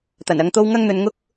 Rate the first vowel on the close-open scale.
open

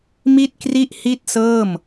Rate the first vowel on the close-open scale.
close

